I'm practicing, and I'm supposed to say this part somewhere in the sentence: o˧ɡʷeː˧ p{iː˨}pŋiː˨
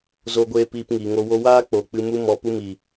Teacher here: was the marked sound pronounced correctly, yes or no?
no